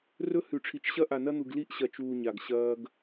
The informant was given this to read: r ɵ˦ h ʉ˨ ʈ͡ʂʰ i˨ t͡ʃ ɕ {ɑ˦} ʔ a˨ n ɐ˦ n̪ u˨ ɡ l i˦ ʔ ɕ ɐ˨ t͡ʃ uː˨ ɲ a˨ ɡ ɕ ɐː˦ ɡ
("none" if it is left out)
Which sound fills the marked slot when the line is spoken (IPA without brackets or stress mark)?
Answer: ɐ˦